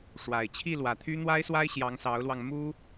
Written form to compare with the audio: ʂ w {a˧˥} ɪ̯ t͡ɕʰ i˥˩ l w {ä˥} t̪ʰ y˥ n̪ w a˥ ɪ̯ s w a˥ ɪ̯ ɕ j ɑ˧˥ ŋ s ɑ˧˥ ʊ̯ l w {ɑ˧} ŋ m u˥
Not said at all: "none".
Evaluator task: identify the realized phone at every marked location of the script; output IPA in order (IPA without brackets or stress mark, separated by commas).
a˨˩, ä˨˩, ɑ˧